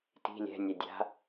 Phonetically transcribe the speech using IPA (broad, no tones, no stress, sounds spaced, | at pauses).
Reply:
t i̤ lʲ ɛ̤ nʲ ɛ dʲ a̤